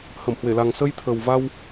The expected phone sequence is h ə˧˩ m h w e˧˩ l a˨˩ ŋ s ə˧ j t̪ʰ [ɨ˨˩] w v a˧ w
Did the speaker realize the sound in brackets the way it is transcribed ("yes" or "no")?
no